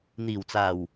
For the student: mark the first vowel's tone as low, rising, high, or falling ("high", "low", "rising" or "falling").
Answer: low